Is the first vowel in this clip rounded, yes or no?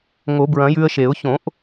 yes